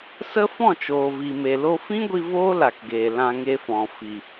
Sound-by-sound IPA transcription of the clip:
sə˦ fɔ̃˦˨t͡ʃoː˨vi˨me˨ lo˧fĩ˦ɡʷi˧ voː˦la˨kɡeː˨ lã˧ŋe˧fɔ̃˨ fi˨

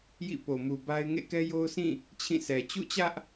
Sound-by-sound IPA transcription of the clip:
jḭ˦˨ po˨mu˨ ba˦ɪ̯ ŋḛ˦˨kɛ˦jo˦ʊ̯sʰĩ˦˨ | t͡ɕʰĩ˦˨sɛ˨ t͡ɕṵ˦˨t͡ɕä˦ʔ

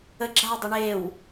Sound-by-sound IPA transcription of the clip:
əɡ͡ǁaɐ̯dˤʊ ɳew

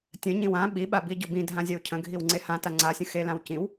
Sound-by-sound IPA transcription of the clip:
tʲə̃ɲĩw ã ɓiɓa biɟʊbĩdʱã zʲawcʰə̃ɡʱiw ŋ͡ǀehãta ŋ͡ǀasʲə̃ xelãw cĩw

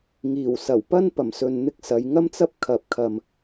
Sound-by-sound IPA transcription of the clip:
ŋiː˨˩wsɐ˨˩wpɐ˥n pɐ˨˩msɵ˨nn̪ɪ˧k̚ sɐ˨˧jŋɐ˥mt͡sɐ˥p̚ kʰɐ˨˥p̚kʰɐ˨m

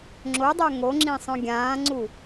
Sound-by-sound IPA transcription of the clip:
ŋ͡ǁodˤœ ŋoŋ͡ǁĩ sˤœ̃ɡʲãːŋ͡ǀu

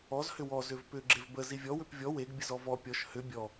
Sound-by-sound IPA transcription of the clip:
ɔz hʏwɔ zʏvpʏ ɡ͡ǁevbə zivʲɔ wʏpvʲɔ weɡ bʲəzɔvɔ pʲɔʃ hʏ bʲɔ

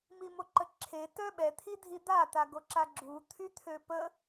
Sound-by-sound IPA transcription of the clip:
mimoǃəǁʰe tœɓɛt̪ʰidʱi d̪at̪aɡoǁa ɡ͡ǁut̪ʰy t̪ʰøpə

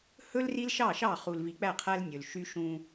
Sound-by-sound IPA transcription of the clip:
hɵ˦l ri˦lʃɑ˦˨ʃɑ˦˨ χu˨lvi˨k͡pæ˦˨ qʰæ˦lnʲɵ˨lʃy˦ʃũː˦

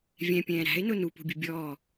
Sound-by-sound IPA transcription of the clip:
vʲɛ̃pʲɛ̃ː ɾæ̤ɪ̯nʊ nupṳbʲʊ bʲɔː

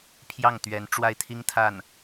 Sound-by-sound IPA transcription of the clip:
pʰjɑ˥˩ŋt̪ɥɛ˧˥n ʈ͡ʂwa˥˩ɪ̯t̪ʰi˥ŋt̪ʰa˥˩n

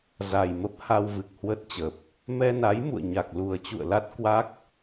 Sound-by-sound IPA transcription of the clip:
za˨˩jmə˦˥p̚ ha˧wvɨ˨˩k̚hwə˦˥t̚t͡ɕə˨˩p̚ | mɛ˧na˨˦jmṵ˧˨ə̯ ɲa˨˩k̚lu˨˩ə̯t͡ɕṵ˧˨ə̯la˦˥t̚ kwa˦˥k̚

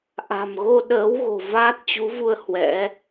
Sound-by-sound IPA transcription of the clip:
ʔa̤˨˩m ɣo˧ɗəː˨˦w ɣo̤˨˩vaː˦˥t̚t͡ɕu˨˦vu˧ə̯ hwɛ̰˧˥

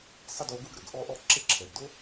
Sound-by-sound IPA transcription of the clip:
sˤə˥do˦ɡu˥ɡɾə˨ɡ ʔɔ˦ʔɔ˦ ǁe˦ǁʰɛ˩ɡdo˥

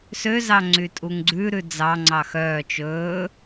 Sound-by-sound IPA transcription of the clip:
søzɑ ŋ͡ǀytʼuŋɡ͡ǀʉɾʉ d͡zɑŋ͡ǀɑ xœː t͡ʃɵː

